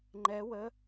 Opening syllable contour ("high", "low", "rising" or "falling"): rising